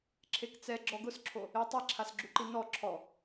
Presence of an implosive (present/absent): absent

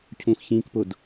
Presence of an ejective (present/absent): absent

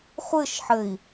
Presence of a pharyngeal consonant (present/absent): present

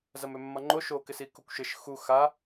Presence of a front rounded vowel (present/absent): present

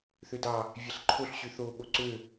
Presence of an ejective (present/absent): absent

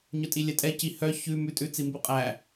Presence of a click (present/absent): absent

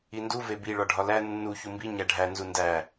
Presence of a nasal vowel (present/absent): absent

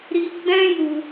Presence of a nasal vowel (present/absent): present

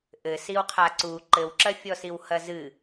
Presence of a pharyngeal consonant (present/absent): absent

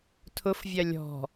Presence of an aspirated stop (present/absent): present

